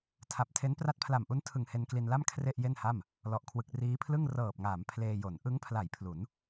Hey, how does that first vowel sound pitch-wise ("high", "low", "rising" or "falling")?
low